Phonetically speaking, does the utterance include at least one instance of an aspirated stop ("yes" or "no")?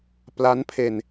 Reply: yes